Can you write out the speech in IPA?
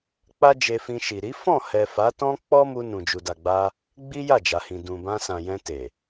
k͡p a˦ d͡ʒ e˧ f ĩ˧ ʃ i˨ ɾ i˨˦ f ɔ̃˦˨ h ɛ˨ f a˨˦ t ɔ̃˦ k͡p ɔ˦ m u˧ n ũ˨ d͡ʒ u˨ d a˨ ɡ͡b a˧ | ɡ͡b i˦ j a˦˨ d͡ʒ a˨ h ĩ˨ d ũ˨ b ã˧ s ã˨ j ɛ̃˧ t e˨

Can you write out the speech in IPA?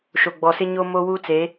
ʃ o˨ ɡ͡b ɔ˨ s ɪ˦ ɲ o˦ m o˦ w u˦ t͡s e˨˦

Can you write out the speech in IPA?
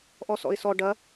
ʔ ɔ s ɔ̰ ɪ̯ s ɔ ɖ ɐ

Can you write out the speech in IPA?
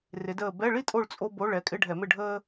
r ɪ˨˦ d əː˦˨ b ɛ˧˥˧ ɭ i˥ tʼ o˦˨ ɭ t͡sʼ o˥ b o˧˥˧ ɭ ɛ˩˧˩ kʼ ɪ˧˥˧ ɖʱ ɛ˧˩˧ m ɪ˦˨ ɖʱ əː˥

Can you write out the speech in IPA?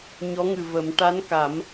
ɲ ɔ˧˥ ŋ ɨ˨˩ v ə˨˩˦ m ʈ a˧˥ n k a˨˩˦ m

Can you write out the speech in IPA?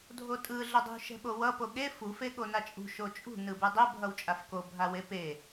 dʱ o tʼ ɯ ɮ ʌ dˤ ṳ ʃ ɛ̤ ɓ o w ʌ p o ɠ e f u f e ɠ o n a t͡ʃʼ ṳ ʃ o t͡ʃʼ ṳ n ɯ b u dˤ ɛ bʱ ʌ w t͡ʃʼ a f k o bʱ a w e p e

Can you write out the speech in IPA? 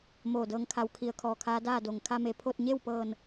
m oː˧˩ d ɤː˧ ŋ kʰ a˧ w kʰ i˧˩ ə̯ kʰ ɔː˧˩ kʰ aː˧˥ d aː˥˨ d o˩ ŋ kʰ a˧ m e˩ pʰ o˥˨ t̚ ɲ e˥˨ w p ɤː˧˩ n

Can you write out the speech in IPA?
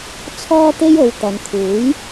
t͡sʰ ɔː˥ t̪ e˥ j o˨˧ w t̪ ɐ˨ n t̪ʰ uː˨˥ j

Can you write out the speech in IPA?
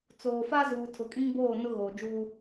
t͡s oː˨ f a˦ z uː˨ tʰ ʊ˨ kʼ ĩ˦ ŋ b oː˦˨ n ʊ˦ ɣ oː˨ d͡ʒ uː˦

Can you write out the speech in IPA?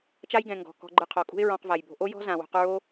t͡ʃ a˦ j ɡ ɛ̃˨ ŋ ɡ ɔ̤˨ k ɔ̤˧ ɡ͡ǃ ɯ˧ qʰ ɔ˨ kʼ ṳ˦ ɪ̯ ɹ ɔ̃˧ q v a˨ j b o̤˧ ʔ o˦ j ɔ̤˦ z ã˨ w o̤˧ q ɹ o˦

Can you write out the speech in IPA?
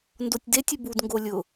n d o tʲ d e tʲ ɪ b u d ŋ ɡ o lʲ ʊ

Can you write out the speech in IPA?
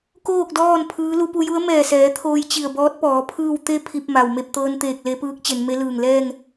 k oː˥˨ k̚ d ɔː˥˨ n pʰ ɯː˧˥ l u˧ p u˧ j u˧˥ ə̯ m ɛː˧˩ s ɛː˩˧ t̪ʰ oː˧ j t͡ɕ i˧˩ ə̯ b ɔː˧˥ t̚ p ɔː˩˧ pʰ ɯː˥˨ w t̪ e˧ pʰ i˧ p̚ m a˩ w m e˥˨ p̚ t̪ ɤː˧ n t̪ eː˧˩ k̚ l e˧ p ɯː˧˥ k̚ t͡ɕ e˩˧ n m e˧˥ l ɯː˧˩ ŋ l ɛː˥˨ ŋ

